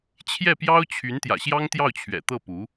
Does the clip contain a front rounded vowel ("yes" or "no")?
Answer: yes